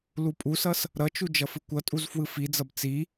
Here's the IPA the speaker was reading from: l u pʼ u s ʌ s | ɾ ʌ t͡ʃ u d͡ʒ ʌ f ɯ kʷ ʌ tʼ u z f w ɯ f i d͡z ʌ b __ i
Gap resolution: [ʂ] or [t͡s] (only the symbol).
t͡s